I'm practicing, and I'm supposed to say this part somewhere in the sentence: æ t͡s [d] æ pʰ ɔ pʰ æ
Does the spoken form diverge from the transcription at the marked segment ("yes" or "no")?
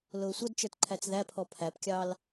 yes